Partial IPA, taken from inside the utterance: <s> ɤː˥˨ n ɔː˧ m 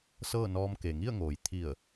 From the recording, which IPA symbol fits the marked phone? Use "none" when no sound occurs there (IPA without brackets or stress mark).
s